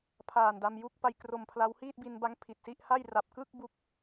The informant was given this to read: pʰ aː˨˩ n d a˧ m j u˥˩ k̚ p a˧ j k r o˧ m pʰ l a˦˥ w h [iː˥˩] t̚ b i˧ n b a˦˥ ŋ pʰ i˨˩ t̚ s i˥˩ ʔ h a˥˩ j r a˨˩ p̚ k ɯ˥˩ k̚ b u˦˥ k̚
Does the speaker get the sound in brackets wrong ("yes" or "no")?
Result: no